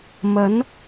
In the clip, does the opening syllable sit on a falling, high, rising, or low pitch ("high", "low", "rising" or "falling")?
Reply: rising